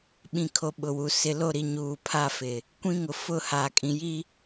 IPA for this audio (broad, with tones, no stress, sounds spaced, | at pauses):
ɓ ĩ˨ kʰ o˨ ɓ ʊ˨ w u˨ s ɪ˨ l o˦˨ ɾ i˨ ɲ uː˨ pʰ a˦˨ f ɪ˨ | kʷ ĩ˦ ŋ ʊ˨ f ʊ˦˨ h a˨ kʼ ĩ˨ j i˦